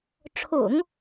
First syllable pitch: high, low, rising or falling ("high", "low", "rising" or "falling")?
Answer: low